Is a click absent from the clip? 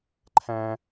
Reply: no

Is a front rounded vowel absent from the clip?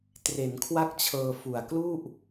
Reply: yes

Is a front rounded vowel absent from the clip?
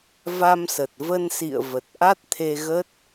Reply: yes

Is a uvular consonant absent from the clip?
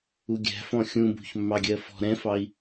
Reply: yes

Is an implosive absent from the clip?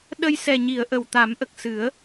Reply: no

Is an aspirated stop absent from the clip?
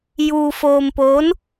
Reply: yes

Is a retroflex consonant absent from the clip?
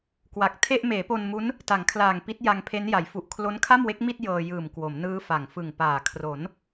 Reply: yes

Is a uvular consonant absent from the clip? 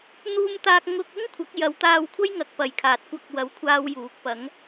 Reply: yes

